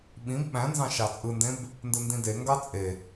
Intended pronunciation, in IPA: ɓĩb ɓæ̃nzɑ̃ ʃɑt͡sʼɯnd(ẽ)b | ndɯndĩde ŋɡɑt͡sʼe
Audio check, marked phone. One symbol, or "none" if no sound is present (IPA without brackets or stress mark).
ẽ